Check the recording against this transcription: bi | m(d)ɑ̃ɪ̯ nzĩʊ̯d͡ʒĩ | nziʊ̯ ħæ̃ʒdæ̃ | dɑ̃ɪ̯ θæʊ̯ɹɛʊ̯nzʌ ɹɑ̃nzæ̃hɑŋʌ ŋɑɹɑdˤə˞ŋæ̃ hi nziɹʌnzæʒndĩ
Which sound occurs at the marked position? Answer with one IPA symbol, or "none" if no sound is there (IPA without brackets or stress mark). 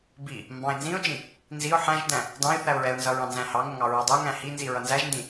b